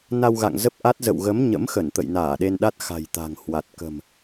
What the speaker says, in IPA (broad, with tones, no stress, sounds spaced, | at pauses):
n a˧ w ɣ a̰˧˨ ŋ z ə˦˥ p̚ ʔ a˦˥ t̚ z ə̰˧˨ w ɣ ə˨˦ m ɲ ə̰˧˥ m x ə˧˩ n t̪ ə̰˧˨ j n aː˧˩ ɗ e˧ n ɗ a˦˥ t̚ x a̤˨˩ j t̪ a̤˨˩ ŋ h w a˨˩ t̚ k ə̤˨˩ m